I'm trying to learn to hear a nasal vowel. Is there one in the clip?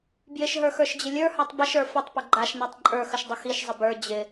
no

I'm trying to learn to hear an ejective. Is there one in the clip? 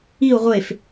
no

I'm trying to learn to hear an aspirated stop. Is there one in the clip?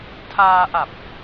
yes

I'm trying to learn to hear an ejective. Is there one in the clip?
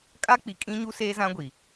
yes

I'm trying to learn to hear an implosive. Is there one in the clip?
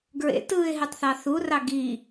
no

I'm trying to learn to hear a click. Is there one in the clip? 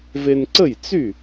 yes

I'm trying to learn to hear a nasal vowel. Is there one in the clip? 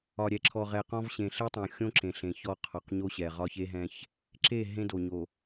yes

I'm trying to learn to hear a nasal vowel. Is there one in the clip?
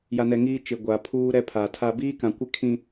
yes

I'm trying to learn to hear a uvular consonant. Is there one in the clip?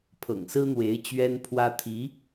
no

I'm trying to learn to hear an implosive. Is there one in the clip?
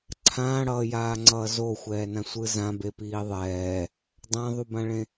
no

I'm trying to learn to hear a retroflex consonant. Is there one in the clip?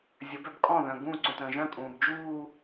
no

